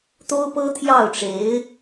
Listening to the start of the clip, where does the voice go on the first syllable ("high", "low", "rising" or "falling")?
high